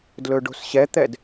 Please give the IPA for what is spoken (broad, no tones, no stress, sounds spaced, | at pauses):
d l ɵ ɖ o̤ s ɕ ɛ t̪ ɛ d